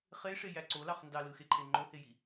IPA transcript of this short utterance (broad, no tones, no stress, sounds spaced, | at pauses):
χ e ʂ e j æ ǀ o l ɑ χ n d ɑ l ɯ x e ǃʰ e ŋ͡ǃ o h e j i